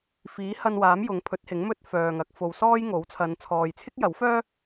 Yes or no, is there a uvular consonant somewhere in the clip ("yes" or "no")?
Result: no